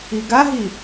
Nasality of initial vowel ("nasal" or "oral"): oral